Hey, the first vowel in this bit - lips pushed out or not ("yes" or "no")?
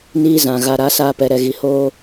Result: no